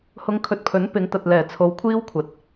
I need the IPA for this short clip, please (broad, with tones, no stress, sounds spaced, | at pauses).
h ʊ˨˧ ŋ kʰ ɵ˨ t̚ pʰ ɵ˨˥ n p ɪ˨˧ ŋ t̪ ɐ˨ t̚ l ɛː˨˩ t͡sʰ o˨˧ w kʷʰ iː˥ w kʷʰ ɐ˨ t̚